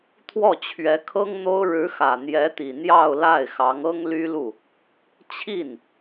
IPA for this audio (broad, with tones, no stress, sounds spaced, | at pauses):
t̪ʰ w ɔ˥˩ t͡ɕʰ ɥ ɛ˧˥ kʰ ɤ˥ ŋ n̪ o˥ ʊ̯ ɻ ɻ̩˧˥ x ä˨˩ n̪ j ɛ˧˥ t̪ i˨˩ n̪ j ɑ˥˧ ʊ̯ l a˥˩ ɪ̯ x ɑ˧˥ ŋ ɤ˥ ŋ l y˥ l u˥˩ | t͡ɕʰ i˥˩ n